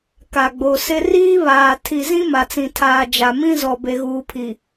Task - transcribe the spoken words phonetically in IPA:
k a˨ ɡ͡b o˨ s ɪ˦ r iː˦ β aː˨ tʰ i˨ z ĩ˦ m a˨ t͡s ĩ˨ tʰ aː˨ d͡ʒ a˨ m ĩ˦ z ɔ˨ b e˨ ɣ uː˨ pʰ i˨

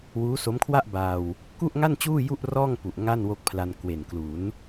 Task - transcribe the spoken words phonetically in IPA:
w uː˦˥ s o˦˥ m kʰ w a˥˩ ʔ b aː˧ w | k u˥˩ ʔ ŋ a˥˩ n t͡ɕ uː˥˩ j u˥˩ ʔ r ɔː˥˩ ŋ p u˨˩ ʔ ŋ a˥˩ n w o˦˥ k̚ pʰ l a˧ n k w e˨˩ n k l u˩˦ n

